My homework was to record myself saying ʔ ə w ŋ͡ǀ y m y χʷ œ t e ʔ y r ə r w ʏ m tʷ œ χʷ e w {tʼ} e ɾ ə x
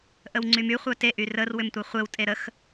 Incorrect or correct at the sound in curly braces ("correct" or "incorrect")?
correct